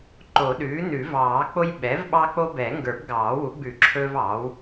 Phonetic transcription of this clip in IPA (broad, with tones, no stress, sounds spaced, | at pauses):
ǃ o˨˩˦ ɗ ʉː˩˥ n ʉ˨˩˦ v ɑː˨˩˦ k͡p o˦ j ɓ ɛ˩˥ v ɓ ɑ˦ k͡p o˦ b ɛ˨˩˦ ŋ ɡ ə˞˨˩˦ b ɡ ɑː˨˩˦ w u˨˩˦ ɡ͡b ʉ˨˩˦ ǁʰ ɵː˦ v ɑː˩˥ w